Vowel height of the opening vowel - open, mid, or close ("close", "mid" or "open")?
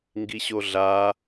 close